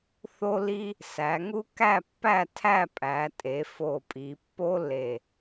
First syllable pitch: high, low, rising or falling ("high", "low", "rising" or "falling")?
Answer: high